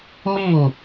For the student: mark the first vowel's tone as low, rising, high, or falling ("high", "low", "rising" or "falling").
falling